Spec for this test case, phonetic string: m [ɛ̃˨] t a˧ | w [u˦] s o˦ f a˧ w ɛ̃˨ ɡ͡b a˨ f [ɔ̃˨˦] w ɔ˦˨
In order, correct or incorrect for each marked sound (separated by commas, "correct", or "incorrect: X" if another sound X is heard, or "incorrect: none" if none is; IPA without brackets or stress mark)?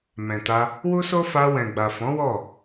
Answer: correct, correct, correct